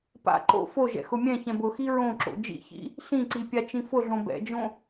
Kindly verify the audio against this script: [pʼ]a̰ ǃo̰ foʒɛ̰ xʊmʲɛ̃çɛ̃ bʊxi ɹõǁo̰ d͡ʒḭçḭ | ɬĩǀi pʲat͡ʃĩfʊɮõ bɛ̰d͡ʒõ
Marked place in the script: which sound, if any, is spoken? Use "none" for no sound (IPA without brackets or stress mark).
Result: p